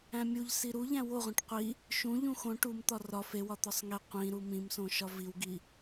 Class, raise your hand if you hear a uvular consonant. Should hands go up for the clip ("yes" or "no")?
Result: yes